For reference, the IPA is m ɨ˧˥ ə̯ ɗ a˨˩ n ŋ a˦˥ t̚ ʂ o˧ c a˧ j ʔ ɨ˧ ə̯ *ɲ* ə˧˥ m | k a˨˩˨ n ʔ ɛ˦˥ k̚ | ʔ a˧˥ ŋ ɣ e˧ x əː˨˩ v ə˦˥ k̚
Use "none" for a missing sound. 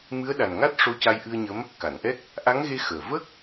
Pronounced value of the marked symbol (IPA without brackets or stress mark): ɲ